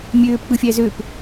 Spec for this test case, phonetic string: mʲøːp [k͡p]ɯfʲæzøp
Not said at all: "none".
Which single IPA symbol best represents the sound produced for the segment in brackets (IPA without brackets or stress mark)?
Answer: k͡p